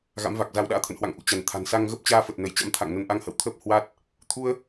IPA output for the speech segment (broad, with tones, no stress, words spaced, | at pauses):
ɣa̰˧˥mva˨˩k̚za˧w ɗa̰ː˧˥t̪ʰə̰˧˨nhwa̰˧˨ŋ ʔṵ˧˨t͡ɕa˧˩n t̪ʰa̤˨˩nsa˧ŋɣə˦˥p̚ t͡ɕaː˧fə˨˩t̚nə˧˩jt͡ɕa̰˧˥m t̪ʰa̰˧˨ŋnə˧n ʔa˧ŋhə̰˧˨wt̪ʰəː˦˥p̚ hwa˦˥t̚ | t̪ʰu˧ə̯